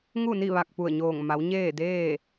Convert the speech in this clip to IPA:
ŋ u˥˨ n i˥˨ ʋ a˧˩ k̚ p u˧˩ ə̯ ɲ oː˧˩ ŋ m a˩˧ w ɲ eː˥˨ d eː˥˨

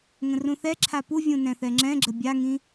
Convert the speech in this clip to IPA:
ŋ ə̃ r ũ θ ɛ ǁʰ a p u vʲ ũ n ɛ̃ θ ɛ ŋ͡ǁ ɛ̃ ɡ͡ǁ ə bʲ a ŋ ĩ

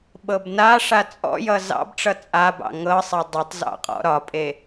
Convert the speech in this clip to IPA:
ɓ ɤ b n a ʂ a t͡sʼ ɔ̰ j ʌ z ɑ̰ b ʈ͡ʂ ʌ t͡sʼ a b ɑ̰ ŋ ɤ sˤ e dˤ ʌ tˤ z ɑ̰ qʼ ɔ̰ ɾ ɒ pʼ e

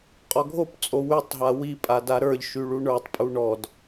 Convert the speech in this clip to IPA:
qʼ ɔ ɡʱ o p t͡sʼ o w y tˤ ɦ a w i pʼ a d a ɾ ə˞ ʎ ʃ y ɭ u ɳ ə˞ tˤ pʼ u ɳ ɔ d

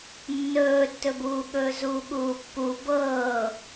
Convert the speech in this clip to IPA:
nː ɵː tː ɵ b uː ɠ ɵː z uː ɠ uː pː u b ɤː

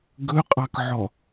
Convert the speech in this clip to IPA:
ɡ ɵ qʼ ɑ k ʕ ɔ

